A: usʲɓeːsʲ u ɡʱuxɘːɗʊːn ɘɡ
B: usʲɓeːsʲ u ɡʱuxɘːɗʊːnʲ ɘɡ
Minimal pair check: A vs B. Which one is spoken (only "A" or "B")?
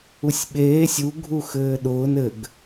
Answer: A